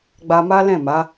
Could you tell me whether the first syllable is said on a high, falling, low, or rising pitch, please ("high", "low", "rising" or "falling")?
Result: high